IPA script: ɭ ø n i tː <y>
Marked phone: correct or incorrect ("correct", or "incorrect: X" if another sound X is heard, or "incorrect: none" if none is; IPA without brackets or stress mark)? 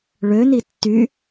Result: correct